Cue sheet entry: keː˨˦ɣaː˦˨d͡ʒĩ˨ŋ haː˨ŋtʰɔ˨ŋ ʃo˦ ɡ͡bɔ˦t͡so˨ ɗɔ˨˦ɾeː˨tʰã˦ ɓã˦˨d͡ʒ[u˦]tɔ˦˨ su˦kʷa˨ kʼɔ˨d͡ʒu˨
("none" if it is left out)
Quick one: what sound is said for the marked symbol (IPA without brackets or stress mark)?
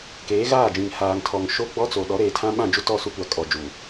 u˦